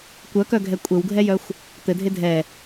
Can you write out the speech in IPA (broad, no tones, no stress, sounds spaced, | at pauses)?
kʷ œ k œ ɡʱ ɛ kʷʼ ɘ w ɡʱ ɛ j œ xʷ | t̪ ɘ dʱ e dʱ ɛ